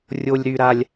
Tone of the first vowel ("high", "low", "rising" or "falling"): high